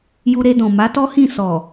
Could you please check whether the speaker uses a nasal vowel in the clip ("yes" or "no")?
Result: yes